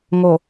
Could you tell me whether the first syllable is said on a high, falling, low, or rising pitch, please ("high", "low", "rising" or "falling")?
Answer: low